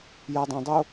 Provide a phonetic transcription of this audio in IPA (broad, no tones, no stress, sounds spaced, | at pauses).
j ɐ dˤ ɐ̃ dˤ o